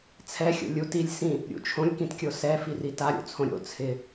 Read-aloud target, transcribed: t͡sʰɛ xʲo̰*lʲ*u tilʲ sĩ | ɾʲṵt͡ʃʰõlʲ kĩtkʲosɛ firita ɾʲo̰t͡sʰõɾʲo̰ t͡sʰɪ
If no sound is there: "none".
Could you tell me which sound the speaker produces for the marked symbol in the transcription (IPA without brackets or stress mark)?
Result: lʲ